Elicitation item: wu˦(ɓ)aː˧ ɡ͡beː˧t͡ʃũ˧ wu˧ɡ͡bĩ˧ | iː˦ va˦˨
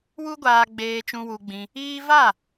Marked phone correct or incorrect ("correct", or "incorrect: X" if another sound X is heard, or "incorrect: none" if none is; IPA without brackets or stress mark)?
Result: incorrect: ɡʷ